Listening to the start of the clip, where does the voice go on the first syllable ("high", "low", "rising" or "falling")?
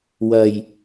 low